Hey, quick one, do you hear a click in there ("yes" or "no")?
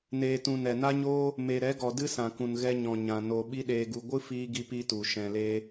no